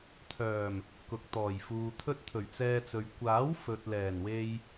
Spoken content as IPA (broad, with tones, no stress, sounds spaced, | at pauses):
t̪ʰ œː˨˩ m | k ʊ˨ k̚ t̪ ɔː˨˩ j f uː˨ t̪ʰ ɵ˥ t̚ t̪ʰ ɵ˨˩ ɥ t͡s ɛː˧ t͡s ɵ˨ ɥ kʷ aː˨˥ w f ɵ˨ t̚ l ɛː˨˩ n w e˧ j